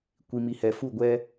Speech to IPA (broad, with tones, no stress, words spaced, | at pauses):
kʷi˨mi˨hɛ˨ fu˦˨ɡʷɛ˦